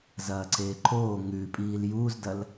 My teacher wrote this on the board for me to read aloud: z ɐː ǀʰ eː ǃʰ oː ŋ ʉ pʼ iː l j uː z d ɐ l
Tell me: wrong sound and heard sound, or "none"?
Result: none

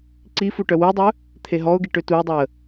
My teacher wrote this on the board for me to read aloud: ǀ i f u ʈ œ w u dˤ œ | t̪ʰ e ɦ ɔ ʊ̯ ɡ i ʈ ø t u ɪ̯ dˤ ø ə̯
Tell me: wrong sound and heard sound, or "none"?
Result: none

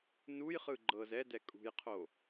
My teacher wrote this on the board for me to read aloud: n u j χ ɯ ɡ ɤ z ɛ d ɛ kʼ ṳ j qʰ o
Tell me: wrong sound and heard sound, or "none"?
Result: ɡ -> ɡ͡ǃ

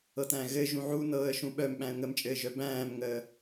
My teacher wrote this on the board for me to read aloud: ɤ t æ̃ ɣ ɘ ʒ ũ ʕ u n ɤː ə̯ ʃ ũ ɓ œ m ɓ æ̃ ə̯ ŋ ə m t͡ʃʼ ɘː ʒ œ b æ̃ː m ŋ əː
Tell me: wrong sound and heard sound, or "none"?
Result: none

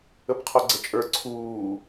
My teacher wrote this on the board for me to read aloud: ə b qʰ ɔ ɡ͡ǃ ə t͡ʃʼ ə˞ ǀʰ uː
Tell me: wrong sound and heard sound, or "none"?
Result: ɡ͡ǃ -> ɡ͡ǀ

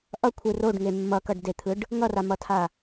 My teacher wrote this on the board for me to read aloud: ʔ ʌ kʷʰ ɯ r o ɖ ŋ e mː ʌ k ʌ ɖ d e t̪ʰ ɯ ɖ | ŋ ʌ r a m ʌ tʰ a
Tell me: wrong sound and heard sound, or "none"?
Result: none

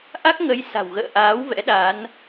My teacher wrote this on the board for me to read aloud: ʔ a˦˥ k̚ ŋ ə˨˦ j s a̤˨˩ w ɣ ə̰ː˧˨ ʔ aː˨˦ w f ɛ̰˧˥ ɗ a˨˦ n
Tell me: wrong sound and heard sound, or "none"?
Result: f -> v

